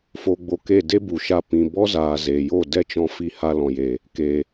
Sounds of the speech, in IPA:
f o˧ ɡ͡b o˧ k e˦˨ d e˦ b u˨ ʃ a˧ p ĩ˨ b ɔ˦ z aː˨ z eː˨ j o˦˨ d ɛ˦ t͡ʃ ɔ̃˧ f i˧ h a˧ l ɔ̃˨ j e˨ | k e˨

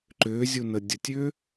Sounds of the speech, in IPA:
ǃ ʏː zʲ u n ə dʲ ə tʲ ʏː

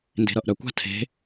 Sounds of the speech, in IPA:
n d e̤ ɾ ʌ ʔ ɾ œ kʷ a̤ tʰ e̤

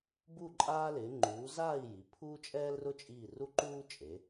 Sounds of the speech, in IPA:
b u˦˨ ǃʼ aː˦ l ɪː˩˧ ŋ͡ǃ uː˩˧ z aː˦˨ i̯ j i˩˧ pʰ uː˦ t͡ʃʼ ɛː˦ l r ʊ˦ t͡ʃʼ iː˦˨ r u˦ ǃ uː˦ t͡ʃʼ e˩˧

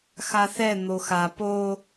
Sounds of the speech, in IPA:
x a θ ɛ n̪ o x a p o

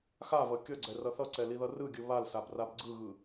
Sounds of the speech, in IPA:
x a v ʌ kʲ ʌ ɡ͡ǀ ɛ r ʌ θ ʌ ǀ ɛ l i ð ʌ r ɯ ɡʲ ɯ β a l s a b r a b ɡ͡ǀ ɯ ɣ ɯ

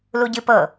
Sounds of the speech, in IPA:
l u ɟ ɨ p ɤ

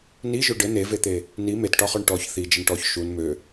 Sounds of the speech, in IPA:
n i ʒ ø ɖ ɘ n e v e t̪ e | n i m e t ʈ ɒ χ ɔ ɳ ʈ ɔ ç θ i d͡ʒ ɘ ɳ ʈ ɔ ç ʃ u n m ø

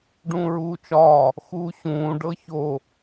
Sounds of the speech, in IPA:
ɖ ũː ɹ uː t͡ʃ ɒː | x uː ɕ ũː ɖ ɤ ç o

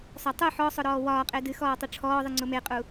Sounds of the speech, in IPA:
s ɒ tˤ u ħ ɔ sˤ ʊ ɾ ɔː w ɒː qʼ e d ɨ x ɔː tˤ ɨ ʈ͡ʂʰ ɔː ðˤ ɨ ŋ͡ǀ ʊ m e qʼ u

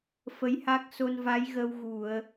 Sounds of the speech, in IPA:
f ə˧˥ j h a˦˥ k̚ s o˧ n v a˧˥ j ɣ ə˧ w ɣ u˨˩˨ ə̯

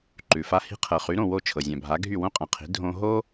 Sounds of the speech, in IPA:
ǃ ʉ˩ f a˧ h i̤˧ qʰ ɤ˩ χ y˩˥ ɾ õ˥˩ w o˥˩ t͡ʃʰ ɤ˩ zʲ ã˩ bʱ a˩˥ ɡʱ y˥˩ w õ˥ qʼ ã˩ qʰ i̤˩˥ dʱ õ˧ ɦ o˥

